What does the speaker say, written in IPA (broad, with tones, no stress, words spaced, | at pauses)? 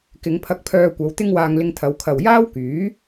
kɪ˨˧ŋpʰɐ˧k̚pʰœː˧kʷɐ˨˧w t̪ɪ˥ŋwaː˧ŋlɪ˧ŋt̪ʰɐ˨˧w kʰɐ˨wjaː˥wkyː˨˥